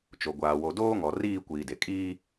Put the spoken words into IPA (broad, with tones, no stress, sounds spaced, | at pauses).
t͡ʃ o˨ ɡʷ aː˨ w o˨ d oː˦ ŋ ɔ˨ r iː˦˨ kʷ iː˨ d e˨ kʼ iː˦